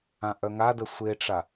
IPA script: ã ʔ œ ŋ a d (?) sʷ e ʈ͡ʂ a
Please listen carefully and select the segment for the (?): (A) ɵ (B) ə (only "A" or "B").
B